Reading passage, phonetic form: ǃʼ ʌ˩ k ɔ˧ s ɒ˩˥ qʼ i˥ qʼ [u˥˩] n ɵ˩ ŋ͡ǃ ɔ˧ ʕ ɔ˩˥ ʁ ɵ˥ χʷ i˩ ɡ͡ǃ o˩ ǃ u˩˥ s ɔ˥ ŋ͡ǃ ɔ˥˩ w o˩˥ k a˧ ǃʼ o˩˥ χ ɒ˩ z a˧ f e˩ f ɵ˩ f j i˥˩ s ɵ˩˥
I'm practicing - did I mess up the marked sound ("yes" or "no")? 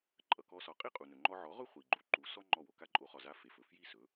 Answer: yes